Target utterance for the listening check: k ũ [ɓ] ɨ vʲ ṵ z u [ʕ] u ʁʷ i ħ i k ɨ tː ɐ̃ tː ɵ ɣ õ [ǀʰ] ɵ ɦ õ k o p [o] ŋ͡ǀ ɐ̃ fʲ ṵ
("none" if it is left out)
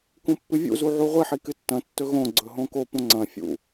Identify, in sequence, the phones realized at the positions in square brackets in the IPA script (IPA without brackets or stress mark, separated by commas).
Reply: pː, ʕ, ɡ͡ǀ, õ